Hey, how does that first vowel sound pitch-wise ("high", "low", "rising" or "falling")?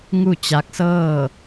falling